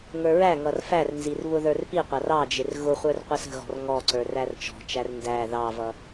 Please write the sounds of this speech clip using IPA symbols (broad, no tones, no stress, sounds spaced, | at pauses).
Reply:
ŋ ə˞ ɹ æ ŋ ʌ r f æ r n z i r β ʊ ð ə˞ r p i qʷ ɑ r ɑ d͡ʒ ɪ r ɣ ʊ χʷ ə˞ r qʷ ə s ə̤ ɣ ɔ̤ r ŋ ɔ ǀ ə˞ r æ r t͡ʃ ɔ̤ t͡ʃ æ r n d æ ð ɑ v ʌ